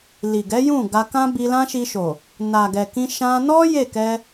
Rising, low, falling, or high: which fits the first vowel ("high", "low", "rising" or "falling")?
low